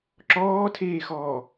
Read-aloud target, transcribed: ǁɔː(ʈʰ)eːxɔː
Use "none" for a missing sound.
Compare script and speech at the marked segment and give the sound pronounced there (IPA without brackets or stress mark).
tʰ